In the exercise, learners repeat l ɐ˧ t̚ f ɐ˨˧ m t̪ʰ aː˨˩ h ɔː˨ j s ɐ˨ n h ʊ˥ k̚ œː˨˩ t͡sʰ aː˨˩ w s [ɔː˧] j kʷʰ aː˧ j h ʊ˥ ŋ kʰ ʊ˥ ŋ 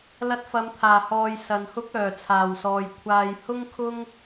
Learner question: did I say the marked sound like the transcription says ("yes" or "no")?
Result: no